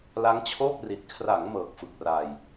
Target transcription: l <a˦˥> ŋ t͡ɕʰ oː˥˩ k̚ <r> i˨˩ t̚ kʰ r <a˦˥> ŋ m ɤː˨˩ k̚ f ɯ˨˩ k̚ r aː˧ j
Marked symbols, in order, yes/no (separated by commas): yes, yes, no